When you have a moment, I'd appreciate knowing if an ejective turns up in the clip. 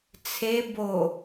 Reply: no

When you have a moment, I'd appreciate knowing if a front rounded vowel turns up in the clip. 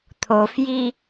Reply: no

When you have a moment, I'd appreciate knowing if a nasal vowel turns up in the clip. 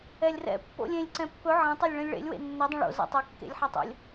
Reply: yes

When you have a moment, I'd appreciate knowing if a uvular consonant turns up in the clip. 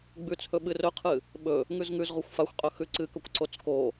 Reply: yes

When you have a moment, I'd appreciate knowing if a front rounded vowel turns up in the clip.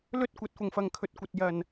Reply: no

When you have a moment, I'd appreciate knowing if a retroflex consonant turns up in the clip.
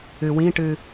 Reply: yes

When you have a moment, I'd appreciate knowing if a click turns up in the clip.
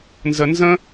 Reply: no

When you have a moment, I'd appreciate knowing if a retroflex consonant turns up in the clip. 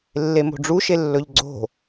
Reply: yes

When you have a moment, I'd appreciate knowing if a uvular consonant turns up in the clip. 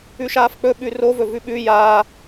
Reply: no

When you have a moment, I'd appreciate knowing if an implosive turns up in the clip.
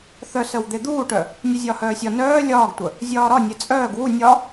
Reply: no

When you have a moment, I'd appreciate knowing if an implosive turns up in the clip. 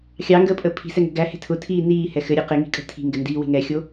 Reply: no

